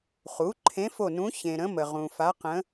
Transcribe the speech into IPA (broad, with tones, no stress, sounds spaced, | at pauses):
χ u˩˥ ǃʰ ẽ˧˥ f o˦˨ n ũ˧˥ ç ẽ˨ ɾ ə̃˧˥ m ə˨ ʁ ũ˨ f a˧˥ q ə̃˧˥